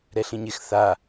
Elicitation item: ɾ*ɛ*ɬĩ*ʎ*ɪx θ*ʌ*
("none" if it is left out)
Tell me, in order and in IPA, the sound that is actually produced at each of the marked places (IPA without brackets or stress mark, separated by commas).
ɛ, ɲ, a